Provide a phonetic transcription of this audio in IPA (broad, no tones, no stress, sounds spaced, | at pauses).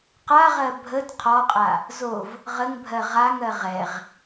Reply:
q a ʁ ɜ bʱ ə d qʰ ɔ qʼ a | z o v | ʁ ə ŋ bʱ ɜ ʁ a ŋ ɜ ʁ ɛ ʁ